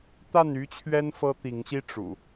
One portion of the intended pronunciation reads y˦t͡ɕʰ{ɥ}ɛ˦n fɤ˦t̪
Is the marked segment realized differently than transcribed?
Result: no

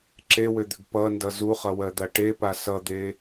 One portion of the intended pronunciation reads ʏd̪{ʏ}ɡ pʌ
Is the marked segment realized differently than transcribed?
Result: no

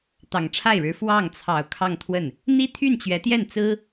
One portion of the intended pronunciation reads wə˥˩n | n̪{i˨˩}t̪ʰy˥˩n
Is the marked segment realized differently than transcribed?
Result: yes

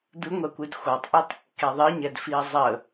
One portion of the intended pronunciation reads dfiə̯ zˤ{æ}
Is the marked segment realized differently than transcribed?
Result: yes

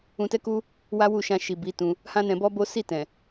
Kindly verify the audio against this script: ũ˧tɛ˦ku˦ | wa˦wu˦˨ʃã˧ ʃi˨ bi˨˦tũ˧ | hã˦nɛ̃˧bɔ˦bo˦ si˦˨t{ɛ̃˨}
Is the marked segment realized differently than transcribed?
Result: no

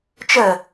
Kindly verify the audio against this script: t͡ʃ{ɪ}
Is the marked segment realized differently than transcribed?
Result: yes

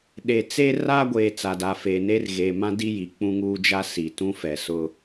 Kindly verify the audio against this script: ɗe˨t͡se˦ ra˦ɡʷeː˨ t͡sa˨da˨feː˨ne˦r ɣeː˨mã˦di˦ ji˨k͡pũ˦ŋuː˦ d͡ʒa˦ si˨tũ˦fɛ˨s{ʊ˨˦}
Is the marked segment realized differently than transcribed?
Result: yes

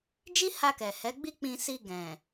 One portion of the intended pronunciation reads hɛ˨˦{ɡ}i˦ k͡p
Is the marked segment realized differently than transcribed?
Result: yes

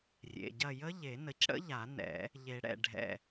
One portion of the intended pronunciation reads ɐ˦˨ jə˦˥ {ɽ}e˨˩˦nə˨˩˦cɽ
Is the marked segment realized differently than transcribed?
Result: yes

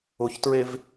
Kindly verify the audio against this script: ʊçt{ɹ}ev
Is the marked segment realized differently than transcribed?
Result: no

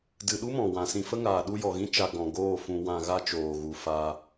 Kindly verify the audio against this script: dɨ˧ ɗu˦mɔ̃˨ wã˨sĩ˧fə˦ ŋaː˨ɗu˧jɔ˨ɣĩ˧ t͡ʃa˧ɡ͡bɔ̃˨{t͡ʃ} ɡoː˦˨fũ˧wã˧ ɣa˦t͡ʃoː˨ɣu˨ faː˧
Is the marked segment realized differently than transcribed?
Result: yes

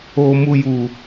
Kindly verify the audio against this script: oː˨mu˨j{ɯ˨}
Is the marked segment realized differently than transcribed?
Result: yes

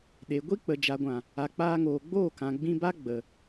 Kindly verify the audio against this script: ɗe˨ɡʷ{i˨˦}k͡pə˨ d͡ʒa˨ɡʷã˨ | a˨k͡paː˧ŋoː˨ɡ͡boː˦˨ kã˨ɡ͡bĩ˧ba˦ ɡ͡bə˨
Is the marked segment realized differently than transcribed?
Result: yes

